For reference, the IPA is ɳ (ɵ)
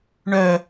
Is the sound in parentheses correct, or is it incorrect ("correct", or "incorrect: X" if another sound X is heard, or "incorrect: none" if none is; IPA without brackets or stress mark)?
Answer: incorrect: œ